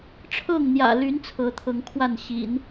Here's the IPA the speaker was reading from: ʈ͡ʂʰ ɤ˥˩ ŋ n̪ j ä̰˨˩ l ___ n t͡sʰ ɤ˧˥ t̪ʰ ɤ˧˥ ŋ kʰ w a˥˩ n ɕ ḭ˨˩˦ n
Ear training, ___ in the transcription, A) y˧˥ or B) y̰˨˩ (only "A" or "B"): A